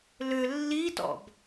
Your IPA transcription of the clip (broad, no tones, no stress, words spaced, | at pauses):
lʏ lːitɔ̰b